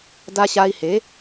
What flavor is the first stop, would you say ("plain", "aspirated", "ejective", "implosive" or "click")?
plain